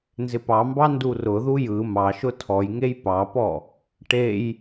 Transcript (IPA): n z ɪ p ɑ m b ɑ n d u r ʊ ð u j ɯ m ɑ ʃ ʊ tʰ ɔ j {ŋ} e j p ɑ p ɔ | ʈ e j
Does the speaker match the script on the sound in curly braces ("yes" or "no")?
yes